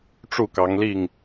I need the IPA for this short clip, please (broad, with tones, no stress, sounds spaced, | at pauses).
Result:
ʈ͡ʂ u˥˨ k ɑ˨˦ ŋ l i˥˨ ŋ